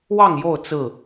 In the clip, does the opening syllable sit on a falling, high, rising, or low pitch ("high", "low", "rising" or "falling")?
falling